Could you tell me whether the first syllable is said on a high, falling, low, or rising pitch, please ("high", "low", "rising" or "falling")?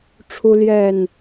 high